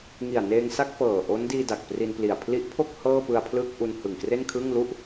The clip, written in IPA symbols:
ŋi˨˩a̯ neː˧ŋsa˥˩k̚fɤː˨˩ ʔo˦˥ndiː˧ da˨˩k̚pri˧npli˨˩a̯ pʰli˦˥ʔpʰo˥˩k̚ hɤː˥˩pɯ˧a̯pʰlɯ˥˩k̚ ʔu˧nhɯ˨˩ŋkre˥˩n kʰɯː˥˩ŋ lu˥˩ʔ

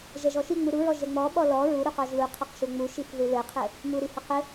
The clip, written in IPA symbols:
ʒɛʒɔʃiŋ͡mu ɾuɹɔ ʒɛŋ͡mɔɓɔ lɔ ɹu ɾuqɔʒluqʰɛq ʃuŋ͡muʃif ðulɘqʰɘ | muɾihɐ qɘ

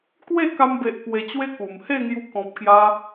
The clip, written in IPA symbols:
kwe˥˧ka˧mbe˨ʔ pwe˧t͡ɕwe˦ku˨˩m he˥˧ŋju˧ kɔ̃˨p̚kja˧

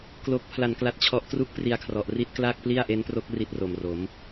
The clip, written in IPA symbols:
klo˨˩k̚ pʰla˩˦nkla˨˩t̚t͡ɕʰɔ˨˩ʔ tru˥˩k̚pri˧a̯kʰrɔ˨˩ʔ ri˦˥t̚kla˥˩k̚pli˥˩a̯ ʔe˦˥npro˦˥k̚ ri˦˥t̚ro˨˩mro˩˦m

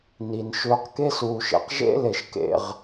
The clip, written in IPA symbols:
ni˨n ʃʏː˧q ke˦suː˨ʃḛ˨q ʒḛ˦ le˨ʃkḛ˨ʁ

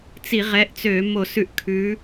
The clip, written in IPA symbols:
t͡si˧˩˧ʁɛ˨˦ʔt͡sø˧˩˧ mo˧˩˧sʉ˧˩˧ʔ kʰʉ˨˦

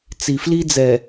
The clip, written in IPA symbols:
t͡si˨fli˦d͡zɛ˨

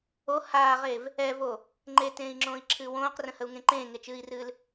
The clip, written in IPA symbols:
o haːʁev | ɛvo | ŋ͡ǃetẽːi̯ŋ͡ǁõːi̯ǁʰɨː wõːqrə̃həu̯ŋẽ ǃẽːŋet͡ʃɨːi̯rɨːl

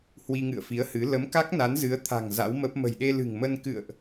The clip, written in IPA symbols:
hwi˧ŋɨ̰˧˨ə̯fi˨˦ə̯hɨ˨˦ lə˨˦mka˦˥k̚ na˨˦nzɨ˨˦ə̯t̪ʰa̤˨˩ŋ za̰˧˥wmə˦˥p̚ mə̤˨˩jɗe˧lɨ̤˨˩ŋmə˧n kɨ̰˧˨ə̯ʔ

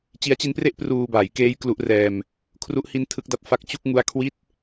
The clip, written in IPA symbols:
t͡ɕi˦˥a̯t͡ɕi˦˥npre˥˩ʔ pruː˧baː˩˦j keː˦˥j klu˦˥ʔrɛː˧m | kʰru˦˥ʔhi˦˥n tʰɯ˦˥k̚da˦˥p̚ fa˦˥k̚t͡ɕu˥˩k̚ ŋu˦˥a̯kʰwi˥˩t̚

